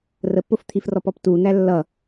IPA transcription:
r ə p ʊ f t̪ʰ i f r ɔ p ɔ p t u n̪ æ lː ʌ

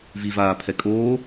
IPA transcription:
v i v aː pʰ ɛ kʼ oː

